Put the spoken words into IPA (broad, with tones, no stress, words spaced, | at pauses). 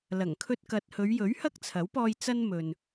lɐ˨˩ŋkʰɵ˧t̚kɐ˨t̚ hɵ˨˧ɥjɵ˨˥ɥ hɐ˥k̚t͡sʰɐ˨˥wpɔː˧j t͡sɐ˥nmɵ˨n